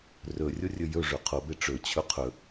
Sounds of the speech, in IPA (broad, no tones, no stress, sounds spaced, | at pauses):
r ɵ rʲ o rʲ ɵ j ɵ ʐ ɵ qʰ o b e ʈ͡ʂ ɵ t͡ɕʰ ɵ qʰ ɵ